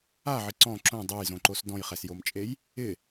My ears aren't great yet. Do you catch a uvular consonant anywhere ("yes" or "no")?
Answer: yes